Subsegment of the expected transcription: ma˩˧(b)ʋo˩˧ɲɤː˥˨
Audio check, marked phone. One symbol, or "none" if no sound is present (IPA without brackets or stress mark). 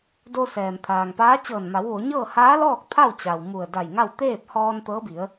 w